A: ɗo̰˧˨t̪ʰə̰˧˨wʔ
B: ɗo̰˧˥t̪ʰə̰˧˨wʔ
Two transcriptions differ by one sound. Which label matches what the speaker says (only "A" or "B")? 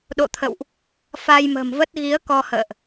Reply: A